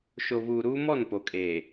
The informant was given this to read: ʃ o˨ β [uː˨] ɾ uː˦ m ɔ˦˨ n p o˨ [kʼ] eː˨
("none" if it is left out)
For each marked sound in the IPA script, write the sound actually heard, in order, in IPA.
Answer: uː˨, kʼ

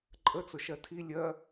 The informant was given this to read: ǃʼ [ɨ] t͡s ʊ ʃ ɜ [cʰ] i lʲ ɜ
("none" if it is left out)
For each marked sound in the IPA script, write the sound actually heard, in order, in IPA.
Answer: ə, tʰ

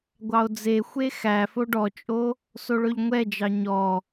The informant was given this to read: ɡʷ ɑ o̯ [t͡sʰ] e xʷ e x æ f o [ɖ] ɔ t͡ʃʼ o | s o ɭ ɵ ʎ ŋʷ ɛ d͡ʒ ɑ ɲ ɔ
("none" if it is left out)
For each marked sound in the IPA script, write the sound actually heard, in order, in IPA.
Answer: d͡z, ɖ

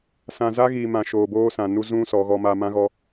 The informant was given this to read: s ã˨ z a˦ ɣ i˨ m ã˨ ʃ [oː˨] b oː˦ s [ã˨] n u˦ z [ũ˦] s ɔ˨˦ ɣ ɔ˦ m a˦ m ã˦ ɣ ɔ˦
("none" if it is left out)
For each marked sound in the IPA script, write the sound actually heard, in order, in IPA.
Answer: oː˨, ã˨, ũ˦

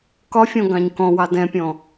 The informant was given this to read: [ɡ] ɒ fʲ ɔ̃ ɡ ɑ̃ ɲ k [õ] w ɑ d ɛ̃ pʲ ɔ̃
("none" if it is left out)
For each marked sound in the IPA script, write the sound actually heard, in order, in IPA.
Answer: k, ɔ̃

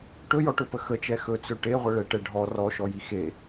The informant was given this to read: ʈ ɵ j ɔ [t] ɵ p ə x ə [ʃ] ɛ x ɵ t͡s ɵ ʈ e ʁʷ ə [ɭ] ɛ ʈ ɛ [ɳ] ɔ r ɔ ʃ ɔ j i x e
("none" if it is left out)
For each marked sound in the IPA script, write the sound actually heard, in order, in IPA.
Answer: ʈ, t͡ʃ, ɭ, ɖʱ

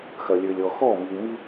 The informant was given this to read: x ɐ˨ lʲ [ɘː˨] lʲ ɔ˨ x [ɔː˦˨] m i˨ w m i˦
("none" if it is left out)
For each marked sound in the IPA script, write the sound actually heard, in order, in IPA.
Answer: ɘː˨, ɔː˦˨

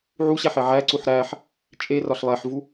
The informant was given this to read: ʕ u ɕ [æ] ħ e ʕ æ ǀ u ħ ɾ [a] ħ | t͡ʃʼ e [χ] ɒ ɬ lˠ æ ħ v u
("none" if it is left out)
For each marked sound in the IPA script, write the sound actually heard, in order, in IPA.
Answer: æ, æ, r

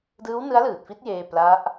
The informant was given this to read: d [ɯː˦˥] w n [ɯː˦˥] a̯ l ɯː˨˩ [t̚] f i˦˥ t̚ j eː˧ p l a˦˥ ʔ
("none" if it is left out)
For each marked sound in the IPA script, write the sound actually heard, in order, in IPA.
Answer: ɯː˦˥, ɯ˦˥, t̚

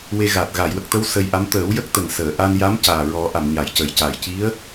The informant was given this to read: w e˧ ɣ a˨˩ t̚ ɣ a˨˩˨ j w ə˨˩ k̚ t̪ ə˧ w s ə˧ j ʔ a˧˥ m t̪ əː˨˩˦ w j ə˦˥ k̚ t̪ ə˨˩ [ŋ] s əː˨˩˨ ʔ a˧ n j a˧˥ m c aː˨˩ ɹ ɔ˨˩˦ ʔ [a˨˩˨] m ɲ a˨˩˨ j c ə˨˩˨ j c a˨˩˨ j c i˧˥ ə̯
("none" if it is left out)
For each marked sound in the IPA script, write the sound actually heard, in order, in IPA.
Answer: ŋ, a˨˩˨

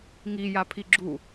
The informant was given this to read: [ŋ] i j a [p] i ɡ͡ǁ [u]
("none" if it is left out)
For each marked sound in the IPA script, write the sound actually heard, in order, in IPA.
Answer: ŋ, pʰ, u

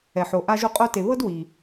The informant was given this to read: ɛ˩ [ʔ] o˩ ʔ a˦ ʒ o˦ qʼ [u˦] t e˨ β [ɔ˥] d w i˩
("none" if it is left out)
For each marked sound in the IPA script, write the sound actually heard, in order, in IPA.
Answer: ħ, o˦, ɤ˥

